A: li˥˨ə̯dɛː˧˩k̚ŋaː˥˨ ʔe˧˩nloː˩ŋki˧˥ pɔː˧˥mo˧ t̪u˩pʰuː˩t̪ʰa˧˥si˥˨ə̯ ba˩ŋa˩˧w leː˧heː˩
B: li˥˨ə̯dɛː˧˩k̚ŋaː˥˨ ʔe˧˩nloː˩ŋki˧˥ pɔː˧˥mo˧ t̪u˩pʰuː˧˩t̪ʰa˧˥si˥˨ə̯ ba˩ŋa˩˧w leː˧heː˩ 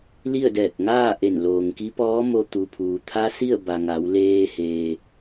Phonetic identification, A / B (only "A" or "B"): A